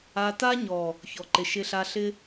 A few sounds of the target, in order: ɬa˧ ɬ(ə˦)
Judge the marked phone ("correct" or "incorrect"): incorrect